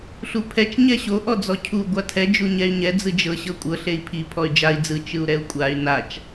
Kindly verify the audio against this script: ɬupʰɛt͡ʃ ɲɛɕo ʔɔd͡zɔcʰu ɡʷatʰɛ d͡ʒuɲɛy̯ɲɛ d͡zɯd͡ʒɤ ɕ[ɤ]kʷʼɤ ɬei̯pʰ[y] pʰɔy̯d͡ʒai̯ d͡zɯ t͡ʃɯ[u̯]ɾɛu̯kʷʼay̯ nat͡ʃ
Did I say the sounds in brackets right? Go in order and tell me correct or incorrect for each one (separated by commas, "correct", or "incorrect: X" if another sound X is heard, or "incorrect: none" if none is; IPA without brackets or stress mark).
correct, incorrect: i, correct